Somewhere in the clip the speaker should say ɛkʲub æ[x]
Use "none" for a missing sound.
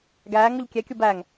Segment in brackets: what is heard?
ŋ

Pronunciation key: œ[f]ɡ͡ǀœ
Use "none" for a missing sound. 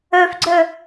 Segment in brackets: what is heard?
f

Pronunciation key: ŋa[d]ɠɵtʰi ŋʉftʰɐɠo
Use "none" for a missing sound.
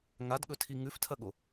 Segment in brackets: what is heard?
d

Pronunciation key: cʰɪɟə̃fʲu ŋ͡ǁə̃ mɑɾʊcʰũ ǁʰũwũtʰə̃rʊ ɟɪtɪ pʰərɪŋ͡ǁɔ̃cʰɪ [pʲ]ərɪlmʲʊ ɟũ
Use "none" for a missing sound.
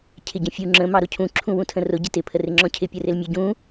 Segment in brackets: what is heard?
pʲ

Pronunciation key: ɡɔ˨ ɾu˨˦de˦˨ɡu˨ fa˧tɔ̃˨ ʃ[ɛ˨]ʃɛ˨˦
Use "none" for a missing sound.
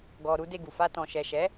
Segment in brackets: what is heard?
ɛ˨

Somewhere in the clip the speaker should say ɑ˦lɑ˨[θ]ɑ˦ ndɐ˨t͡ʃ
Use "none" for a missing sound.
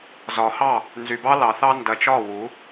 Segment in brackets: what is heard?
θ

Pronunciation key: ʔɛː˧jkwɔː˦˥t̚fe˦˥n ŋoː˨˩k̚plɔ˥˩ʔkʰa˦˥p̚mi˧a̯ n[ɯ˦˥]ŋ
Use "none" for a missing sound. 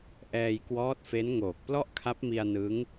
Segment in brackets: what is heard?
ɯ˦˥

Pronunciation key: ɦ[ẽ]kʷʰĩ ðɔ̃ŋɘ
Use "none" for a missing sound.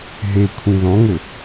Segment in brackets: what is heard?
e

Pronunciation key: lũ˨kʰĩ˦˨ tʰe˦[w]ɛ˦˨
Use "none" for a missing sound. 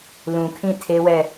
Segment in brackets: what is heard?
w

